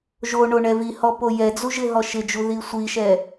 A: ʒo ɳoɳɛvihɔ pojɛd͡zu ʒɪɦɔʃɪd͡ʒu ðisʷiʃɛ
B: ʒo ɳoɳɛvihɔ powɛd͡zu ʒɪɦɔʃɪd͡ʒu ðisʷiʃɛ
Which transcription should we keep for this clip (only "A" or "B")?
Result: A